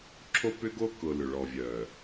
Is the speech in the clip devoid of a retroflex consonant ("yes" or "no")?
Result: no